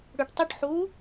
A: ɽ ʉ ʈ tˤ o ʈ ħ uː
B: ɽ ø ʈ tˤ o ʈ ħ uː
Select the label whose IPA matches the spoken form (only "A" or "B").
A